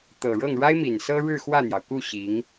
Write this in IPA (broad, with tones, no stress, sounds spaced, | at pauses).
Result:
t̪ ɤ˨˩ ɻ ɤ˥˩ ŋ ɻ a˥ ɪ̯ m i˨˩ n s ɤ˥ ɻ ɻ̩˥˧ x w ä˥˩ n̪ j ɑ˩ ʊ̯ k u˥˩ ɕ i˧˥ ŋ